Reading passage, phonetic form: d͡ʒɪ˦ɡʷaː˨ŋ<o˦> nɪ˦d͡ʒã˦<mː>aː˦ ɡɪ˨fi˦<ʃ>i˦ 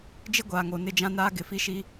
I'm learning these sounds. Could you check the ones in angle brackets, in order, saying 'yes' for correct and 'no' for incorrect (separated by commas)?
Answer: no, no, yes